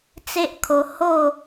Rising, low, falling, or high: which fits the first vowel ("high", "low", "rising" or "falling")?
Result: high